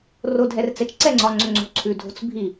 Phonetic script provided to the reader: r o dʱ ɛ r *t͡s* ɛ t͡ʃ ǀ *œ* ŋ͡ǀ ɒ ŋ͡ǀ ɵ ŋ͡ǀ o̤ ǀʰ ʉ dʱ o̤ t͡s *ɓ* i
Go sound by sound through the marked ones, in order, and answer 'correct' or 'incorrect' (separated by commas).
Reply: correct, incorrect, incorrect